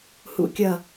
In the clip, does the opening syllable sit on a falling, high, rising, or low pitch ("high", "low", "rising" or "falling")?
falling